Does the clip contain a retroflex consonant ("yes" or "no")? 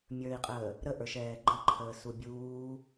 no